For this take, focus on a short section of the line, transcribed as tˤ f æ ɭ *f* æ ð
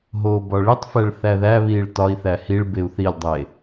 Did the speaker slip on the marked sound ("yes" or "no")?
yes